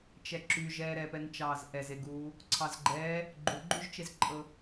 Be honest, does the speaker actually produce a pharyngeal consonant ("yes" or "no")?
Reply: no